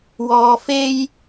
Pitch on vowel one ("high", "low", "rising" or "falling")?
low